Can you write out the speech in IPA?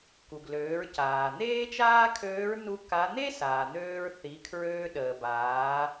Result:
ku˩ɡløː˩˧ɹ caː˩ n̪eː˥t͡ʃaː˥kʰøː˧˥ɹ nu˧ ka˧˥ n̪e˥saː˩ n̪øː˧ɹ θi˩˧ kʰɹøː˧ɗəː˩baː˩˧

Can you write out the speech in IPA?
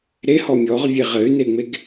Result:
ɾehɔ mʲɔʁvʲe ʁɘy̯neŋ͡meɡ

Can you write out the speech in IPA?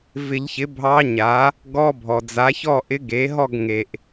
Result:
vɪ˨˩˦ʎçɪ˩˥ bʱɑ˧˥ɲa˩˥ | ɡɔ˧˥˧bʱɔ˩ d͡za˩˥çɔ˥˨ ʔɪ˧˥ɡe˩˥ɦɔ˥˨ɡ ŋe˩ʔ

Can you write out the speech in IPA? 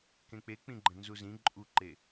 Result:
kẽk͡pek͡pĩɡ͡ǃə̃ nzuzĩ ǃʼuǃe

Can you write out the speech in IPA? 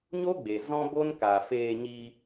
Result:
ɲo˦ɡ͡be˨ zɔ̃˦bo˦n ka˨feː˧ɲi˧

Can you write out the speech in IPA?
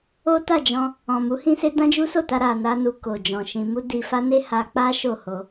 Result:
o˦ta˦˨d͡ʒɔ̃˧ | ɔ̃˨mu˨˦ hĩ˦se˦ dã˦d͡ʒu˦so˦˨ta˧ ɾa˨ na˧nu˨ ko˨d͡ʒɔ̃˨ʃĩ˧ mu˧ di˧fa˦ne˦ ha˧k͡pa˦ ʃo˦˨ho˧

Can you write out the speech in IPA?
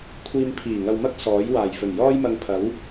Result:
kʷʰiː˧m pʰiː˨˩ŋɐ˧wmɐ˥k̚ sɔː˨˥j waː˨˩jfɵ˨˩njɔː˥jmɐ˧ŋ pʰɐ˨˥w

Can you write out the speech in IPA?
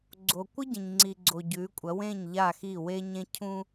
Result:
ɡ͡ǀo˨ kʷɨ˦ɟẽ˨ɲŋ͡ǀi˨ɡ͡ǀo˨ ɟʉ˨˦kʷʼɐ˨˦ wẽ˦˨ɲ ʎa˦˨xi˦˨we˦ ɲẽ˦cʰũ˦

